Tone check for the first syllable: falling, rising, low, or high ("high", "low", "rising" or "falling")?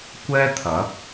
high